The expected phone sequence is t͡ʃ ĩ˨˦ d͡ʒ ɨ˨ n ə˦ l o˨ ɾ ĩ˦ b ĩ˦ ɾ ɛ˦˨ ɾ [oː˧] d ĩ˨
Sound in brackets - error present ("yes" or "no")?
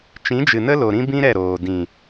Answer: yes